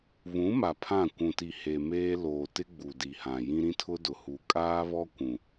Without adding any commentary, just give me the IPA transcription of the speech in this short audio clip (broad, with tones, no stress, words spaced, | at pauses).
βũ˨˦ ma˨pʰã˦˨ kʷũ˨ti˨ he˨meː˦ loː˨tɪ˦ ɡ͡bu˨di˨hã˨ jĩ˦ ɾĩ˦tʰʊ˦ dʊ˨hu˨ kʼaː˦βɔ˦ kʷũ˨